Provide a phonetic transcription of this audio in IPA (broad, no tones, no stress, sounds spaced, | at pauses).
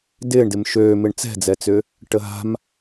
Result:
d ɪː ɳ d ɪ m ʃ øː m ɪ ɳ t͡s ɛ̤ d͡z ɛ t͡s ʏ | ʈ ə ɦ a̤ m